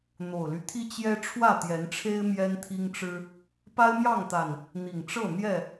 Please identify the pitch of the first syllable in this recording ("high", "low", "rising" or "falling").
low